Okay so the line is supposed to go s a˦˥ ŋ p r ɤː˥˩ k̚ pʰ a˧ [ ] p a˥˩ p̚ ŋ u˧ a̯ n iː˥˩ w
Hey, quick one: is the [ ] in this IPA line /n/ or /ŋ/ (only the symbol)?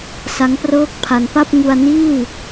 n